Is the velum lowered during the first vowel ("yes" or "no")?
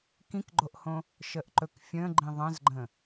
yes